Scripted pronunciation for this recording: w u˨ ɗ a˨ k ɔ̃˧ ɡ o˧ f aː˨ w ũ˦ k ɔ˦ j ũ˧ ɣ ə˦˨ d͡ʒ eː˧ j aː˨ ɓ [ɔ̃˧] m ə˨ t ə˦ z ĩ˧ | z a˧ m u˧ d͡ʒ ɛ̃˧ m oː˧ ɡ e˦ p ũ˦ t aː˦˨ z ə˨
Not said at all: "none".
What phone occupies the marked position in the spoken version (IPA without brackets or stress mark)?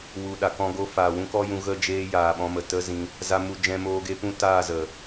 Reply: ɔ̃˧